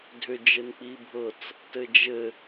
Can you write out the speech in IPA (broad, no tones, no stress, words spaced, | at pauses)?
dʱʏ d͡ʒɘnk͡pibʱɤt͡s | tɘd͡ʒɘ